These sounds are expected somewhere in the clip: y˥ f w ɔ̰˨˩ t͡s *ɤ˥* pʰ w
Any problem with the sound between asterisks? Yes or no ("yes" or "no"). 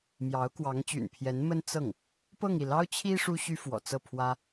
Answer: yes